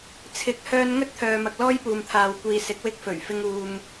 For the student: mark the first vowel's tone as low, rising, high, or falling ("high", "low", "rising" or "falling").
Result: rising